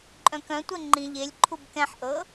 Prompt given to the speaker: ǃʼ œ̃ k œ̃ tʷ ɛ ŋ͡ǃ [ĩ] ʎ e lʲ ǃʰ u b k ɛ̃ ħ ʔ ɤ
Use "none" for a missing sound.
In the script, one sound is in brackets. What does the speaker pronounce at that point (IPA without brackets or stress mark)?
ĩ